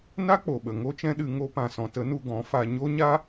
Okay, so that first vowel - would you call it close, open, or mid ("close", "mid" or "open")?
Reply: open